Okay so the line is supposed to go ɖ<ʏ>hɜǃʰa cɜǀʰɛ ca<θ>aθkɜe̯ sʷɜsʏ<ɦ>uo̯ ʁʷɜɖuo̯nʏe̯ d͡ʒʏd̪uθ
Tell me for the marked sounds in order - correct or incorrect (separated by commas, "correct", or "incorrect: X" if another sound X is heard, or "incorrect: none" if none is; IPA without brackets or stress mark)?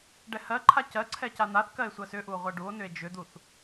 incorrect: ɛ, incorrect: n̪, incorrect: ʔ